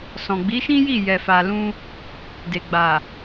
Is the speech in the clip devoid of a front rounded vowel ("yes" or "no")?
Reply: yes